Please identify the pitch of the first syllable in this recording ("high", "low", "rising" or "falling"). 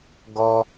high